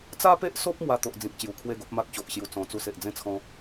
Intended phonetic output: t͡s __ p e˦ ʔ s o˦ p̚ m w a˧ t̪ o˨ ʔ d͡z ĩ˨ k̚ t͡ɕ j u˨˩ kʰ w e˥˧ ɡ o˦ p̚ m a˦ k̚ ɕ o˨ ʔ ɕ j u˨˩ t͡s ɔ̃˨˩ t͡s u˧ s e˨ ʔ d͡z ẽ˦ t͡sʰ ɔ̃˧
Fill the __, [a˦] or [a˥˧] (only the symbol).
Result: a˦